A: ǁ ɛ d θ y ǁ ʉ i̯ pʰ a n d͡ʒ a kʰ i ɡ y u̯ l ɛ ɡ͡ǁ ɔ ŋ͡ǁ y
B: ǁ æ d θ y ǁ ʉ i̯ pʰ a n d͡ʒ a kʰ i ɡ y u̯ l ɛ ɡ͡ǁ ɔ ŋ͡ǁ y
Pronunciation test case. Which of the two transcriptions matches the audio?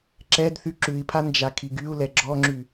A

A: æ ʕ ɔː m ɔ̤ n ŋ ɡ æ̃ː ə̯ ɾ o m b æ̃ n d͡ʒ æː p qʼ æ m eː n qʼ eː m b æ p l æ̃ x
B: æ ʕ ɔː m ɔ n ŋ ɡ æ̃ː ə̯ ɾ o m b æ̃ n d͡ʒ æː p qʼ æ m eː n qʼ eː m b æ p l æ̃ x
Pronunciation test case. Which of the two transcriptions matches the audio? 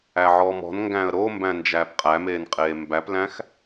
A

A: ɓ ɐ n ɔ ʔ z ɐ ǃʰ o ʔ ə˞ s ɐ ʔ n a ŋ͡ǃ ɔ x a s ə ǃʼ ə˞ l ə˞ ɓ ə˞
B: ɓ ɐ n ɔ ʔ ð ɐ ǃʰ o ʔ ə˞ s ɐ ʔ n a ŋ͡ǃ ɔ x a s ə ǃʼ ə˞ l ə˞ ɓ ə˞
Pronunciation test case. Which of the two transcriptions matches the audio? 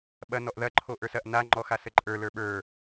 B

